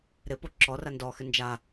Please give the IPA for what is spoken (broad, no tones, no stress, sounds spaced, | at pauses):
ɾ ɪ p o ǁ ɔ r a n d ɔ x ɪ n d͡ʒ a